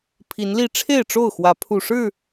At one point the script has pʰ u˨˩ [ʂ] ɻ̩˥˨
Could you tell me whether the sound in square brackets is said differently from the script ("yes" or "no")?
no